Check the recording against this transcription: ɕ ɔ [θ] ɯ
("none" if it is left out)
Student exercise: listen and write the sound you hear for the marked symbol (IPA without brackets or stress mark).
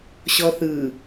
θ